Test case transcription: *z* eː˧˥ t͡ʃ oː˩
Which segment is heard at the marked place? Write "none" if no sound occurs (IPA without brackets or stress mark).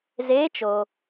z